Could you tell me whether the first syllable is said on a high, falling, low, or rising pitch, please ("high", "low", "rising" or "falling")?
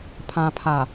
low